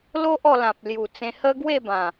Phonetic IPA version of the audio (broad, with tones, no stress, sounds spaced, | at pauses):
l o˦ ʔ ɔ˧ l ã˨ p̚ l j u˨˩ t͡s ẽ˧ h ə˦ ɡ w e˥˧ b ã˨˩